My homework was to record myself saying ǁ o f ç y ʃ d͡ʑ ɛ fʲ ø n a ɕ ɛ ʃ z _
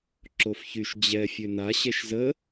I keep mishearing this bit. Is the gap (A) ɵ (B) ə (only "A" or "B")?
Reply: B